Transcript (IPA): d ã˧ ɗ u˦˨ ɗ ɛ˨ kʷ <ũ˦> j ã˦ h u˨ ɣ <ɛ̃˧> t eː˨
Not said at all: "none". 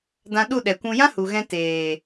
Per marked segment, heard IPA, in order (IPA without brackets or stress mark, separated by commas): ũ˧, ɛ̃˧